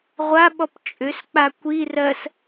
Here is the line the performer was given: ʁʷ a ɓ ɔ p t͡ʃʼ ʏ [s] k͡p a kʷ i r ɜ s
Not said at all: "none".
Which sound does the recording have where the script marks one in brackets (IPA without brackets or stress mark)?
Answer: s